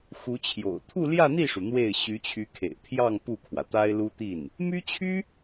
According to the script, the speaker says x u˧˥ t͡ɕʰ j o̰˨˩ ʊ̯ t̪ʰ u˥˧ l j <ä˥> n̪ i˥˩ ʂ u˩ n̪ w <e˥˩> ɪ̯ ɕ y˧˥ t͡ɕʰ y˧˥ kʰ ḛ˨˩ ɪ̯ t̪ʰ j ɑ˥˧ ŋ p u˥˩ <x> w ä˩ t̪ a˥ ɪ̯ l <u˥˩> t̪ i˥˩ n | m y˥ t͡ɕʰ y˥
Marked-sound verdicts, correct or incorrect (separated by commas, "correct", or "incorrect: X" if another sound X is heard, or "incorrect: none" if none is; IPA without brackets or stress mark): incorrect: ä˥˧, correct, incorrect: kʰ, incorrect: u˥